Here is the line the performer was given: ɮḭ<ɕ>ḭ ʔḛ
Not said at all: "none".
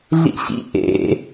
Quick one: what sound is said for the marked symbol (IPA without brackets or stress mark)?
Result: ɕ